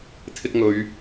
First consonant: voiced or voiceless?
voiceless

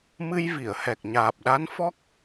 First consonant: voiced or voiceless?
voiced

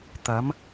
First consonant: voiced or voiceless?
voiceless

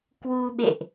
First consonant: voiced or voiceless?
voiceless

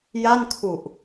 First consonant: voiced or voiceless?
voiced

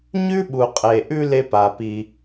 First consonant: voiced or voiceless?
voiced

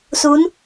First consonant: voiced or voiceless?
voiceless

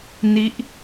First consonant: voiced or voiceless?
voiced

